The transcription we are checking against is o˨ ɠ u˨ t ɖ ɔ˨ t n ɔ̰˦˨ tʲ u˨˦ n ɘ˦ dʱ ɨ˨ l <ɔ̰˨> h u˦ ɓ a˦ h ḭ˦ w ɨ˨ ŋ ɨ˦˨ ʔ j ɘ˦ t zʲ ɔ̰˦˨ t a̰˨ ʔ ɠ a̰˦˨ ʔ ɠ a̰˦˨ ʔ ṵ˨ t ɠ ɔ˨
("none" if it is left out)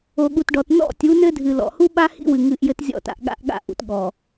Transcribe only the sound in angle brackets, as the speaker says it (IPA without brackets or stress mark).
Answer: ɔ̰˨